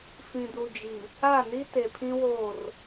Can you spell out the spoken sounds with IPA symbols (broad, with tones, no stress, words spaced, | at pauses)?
fĩ˨du˨d͡ʒi˨ | a˦˨ni˦ te˨pʰĩ˦woː˦˨r